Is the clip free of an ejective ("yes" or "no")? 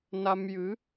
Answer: yes